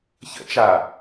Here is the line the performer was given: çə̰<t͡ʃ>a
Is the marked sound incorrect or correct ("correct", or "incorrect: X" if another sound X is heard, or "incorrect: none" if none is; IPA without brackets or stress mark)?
correct